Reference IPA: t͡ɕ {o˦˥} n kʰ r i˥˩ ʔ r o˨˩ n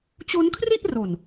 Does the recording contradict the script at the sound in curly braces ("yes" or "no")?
no